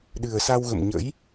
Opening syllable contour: low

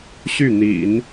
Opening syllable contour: falling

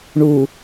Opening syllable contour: low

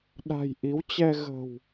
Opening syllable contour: low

